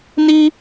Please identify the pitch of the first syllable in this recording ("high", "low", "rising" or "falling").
high